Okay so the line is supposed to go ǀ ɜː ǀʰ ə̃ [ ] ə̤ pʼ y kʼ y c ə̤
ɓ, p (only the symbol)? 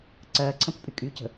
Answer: p